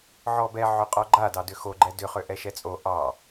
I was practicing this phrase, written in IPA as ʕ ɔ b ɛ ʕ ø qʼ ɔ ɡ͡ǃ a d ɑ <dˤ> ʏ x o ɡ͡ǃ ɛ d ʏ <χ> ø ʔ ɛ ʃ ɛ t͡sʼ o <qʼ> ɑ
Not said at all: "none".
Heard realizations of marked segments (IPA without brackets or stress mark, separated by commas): d, χ, ʔ